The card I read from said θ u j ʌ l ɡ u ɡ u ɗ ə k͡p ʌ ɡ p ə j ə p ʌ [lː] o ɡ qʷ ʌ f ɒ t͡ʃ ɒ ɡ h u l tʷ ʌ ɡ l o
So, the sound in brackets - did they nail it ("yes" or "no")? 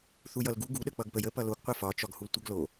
no